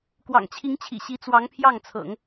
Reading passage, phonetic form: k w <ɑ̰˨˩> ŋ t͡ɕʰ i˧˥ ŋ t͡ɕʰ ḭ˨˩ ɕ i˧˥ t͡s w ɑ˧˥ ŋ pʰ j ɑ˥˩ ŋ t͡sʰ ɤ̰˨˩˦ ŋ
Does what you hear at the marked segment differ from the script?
no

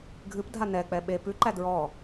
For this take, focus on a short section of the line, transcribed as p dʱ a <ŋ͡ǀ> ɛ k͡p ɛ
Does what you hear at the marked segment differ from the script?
yes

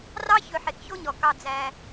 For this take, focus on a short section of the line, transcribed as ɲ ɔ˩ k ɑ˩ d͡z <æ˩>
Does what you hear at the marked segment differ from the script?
no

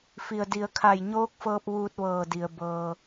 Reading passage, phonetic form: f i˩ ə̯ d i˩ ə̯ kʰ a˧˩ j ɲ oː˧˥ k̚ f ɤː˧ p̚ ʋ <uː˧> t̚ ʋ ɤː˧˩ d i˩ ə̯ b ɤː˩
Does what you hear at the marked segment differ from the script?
no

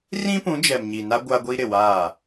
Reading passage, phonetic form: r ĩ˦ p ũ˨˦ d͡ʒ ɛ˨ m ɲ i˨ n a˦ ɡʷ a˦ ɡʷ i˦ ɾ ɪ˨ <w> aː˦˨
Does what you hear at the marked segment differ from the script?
no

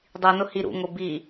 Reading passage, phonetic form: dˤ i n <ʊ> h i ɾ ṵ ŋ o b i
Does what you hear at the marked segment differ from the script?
no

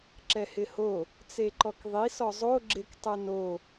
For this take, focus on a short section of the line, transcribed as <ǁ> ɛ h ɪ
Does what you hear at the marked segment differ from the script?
no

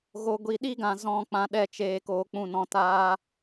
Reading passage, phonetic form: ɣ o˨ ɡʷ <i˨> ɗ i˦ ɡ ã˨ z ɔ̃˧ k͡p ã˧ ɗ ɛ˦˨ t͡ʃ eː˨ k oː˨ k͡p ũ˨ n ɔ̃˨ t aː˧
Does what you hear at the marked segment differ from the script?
no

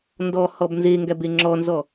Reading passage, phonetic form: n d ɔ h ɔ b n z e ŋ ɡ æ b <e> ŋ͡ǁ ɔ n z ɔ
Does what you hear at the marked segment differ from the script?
no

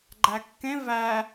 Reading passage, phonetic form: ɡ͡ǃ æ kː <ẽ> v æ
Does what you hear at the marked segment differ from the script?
no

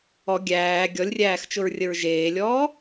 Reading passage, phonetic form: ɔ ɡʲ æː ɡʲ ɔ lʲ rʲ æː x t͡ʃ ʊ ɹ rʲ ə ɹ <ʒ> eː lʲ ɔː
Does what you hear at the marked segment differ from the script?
no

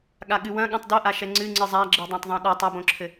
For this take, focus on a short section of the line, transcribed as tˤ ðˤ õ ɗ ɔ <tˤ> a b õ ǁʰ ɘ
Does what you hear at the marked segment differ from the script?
no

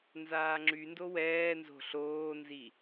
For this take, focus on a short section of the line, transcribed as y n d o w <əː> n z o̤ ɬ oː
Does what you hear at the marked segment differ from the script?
yes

